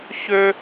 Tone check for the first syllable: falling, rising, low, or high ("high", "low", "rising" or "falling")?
high